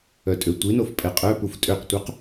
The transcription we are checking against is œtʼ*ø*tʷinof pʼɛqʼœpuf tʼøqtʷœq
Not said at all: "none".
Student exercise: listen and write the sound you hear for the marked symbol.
ø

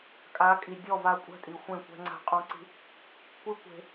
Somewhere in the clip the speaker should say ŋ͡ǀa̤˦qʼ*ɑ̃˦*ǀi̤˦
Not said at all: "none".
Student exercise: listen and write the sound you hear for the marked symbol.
ɔ̃˦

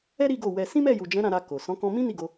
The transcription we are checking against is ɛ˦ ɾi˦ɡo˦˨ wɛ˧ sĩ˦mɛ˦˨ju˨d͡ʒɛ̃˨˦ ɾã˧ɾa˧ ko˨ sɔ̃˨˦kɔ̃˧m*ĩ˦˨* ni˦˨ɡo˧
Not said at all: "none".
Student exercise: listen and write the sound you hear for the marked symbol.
ĩ˦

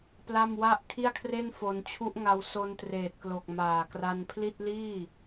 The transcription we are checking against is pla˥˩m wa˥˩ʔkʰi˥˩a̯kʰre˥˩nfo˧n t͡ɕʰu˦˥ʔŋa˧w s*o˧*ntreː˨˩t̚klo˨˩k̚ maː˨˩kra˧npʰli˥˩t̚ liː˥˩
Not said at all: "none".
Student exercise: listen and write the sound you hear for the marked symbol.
o˧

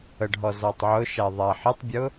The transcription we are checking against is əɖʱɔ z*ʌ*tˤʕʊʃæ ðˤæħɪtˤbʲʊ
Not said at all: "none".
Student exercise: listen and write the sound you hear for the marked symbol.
ɔ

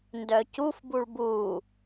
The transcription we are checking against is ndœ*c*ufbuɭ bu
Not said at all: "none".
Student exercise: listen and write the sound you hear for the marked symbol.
c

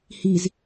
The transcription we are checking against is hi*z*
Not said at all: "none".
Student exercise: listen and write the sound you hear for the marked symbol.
z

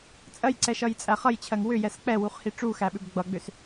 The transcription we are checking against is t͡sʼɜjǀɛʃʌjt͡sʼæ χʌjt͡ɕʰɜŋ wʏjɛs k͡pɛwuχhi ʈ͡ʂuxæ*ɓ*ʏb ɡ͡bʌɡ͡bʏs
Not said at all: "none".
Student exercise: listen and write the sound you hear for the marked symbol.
ɓ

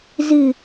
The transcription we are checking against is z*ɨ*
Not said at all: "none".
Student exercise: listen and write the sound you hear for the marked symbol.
ɨ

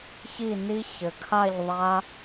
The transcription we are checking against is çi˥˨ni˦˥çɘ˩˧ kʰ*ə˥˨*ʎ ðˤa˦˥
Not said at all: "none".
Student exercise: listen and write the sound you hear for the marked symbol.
a˥˨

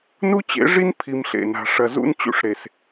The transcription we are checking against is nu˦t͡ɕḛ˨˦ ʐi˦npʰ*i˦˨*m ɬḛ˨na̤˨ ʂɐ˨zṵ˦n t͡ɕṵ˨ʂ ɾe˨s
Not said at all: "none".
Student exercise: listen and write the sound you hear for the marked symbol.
i˨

